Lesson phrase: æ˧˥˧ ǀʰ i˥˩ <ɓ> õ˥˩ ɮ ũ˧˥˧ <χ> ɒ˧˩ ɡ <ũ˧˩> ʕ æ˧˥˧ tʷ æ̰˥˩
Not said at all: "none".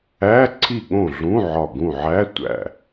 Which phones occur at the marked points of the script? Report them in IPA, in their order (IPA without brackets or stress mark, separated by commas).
ɠ, ʕ, ũ˧˩